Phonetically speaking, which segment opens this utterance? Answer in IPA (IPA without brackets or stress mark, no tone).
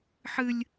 ħ